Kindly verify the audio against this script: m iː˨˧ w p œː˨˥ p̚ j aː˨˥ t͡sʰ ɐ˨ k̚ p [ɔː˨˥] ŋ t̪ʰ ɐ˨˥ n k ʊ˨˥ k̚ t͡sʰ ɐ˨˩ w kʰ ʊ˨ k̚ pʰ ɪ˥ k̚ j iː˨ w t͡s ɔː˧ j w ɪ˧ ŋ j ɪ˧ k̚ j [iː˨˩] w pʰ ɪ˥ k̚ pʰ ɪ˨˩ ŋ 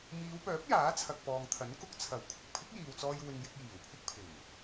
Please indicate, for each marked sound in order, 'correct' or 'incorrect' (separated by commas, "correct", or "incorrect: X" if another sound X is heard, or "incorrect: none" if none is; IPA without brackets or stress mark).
incorrect: ɔː˨, correct